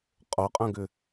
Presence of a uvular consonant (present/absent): present